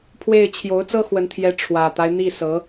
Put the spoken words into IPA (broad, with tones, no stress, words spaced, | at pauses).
pʰwe˥˩ɪ̯ t͡ɕʰjo˧˥ʊ̯t͡sɤ˥xwə˧˥n t̪ʰjɛ˧˥ ʈ͡ʂʰwä˨˩t̪a˦ɪ̯ n̪i˥˩sɤ˧˥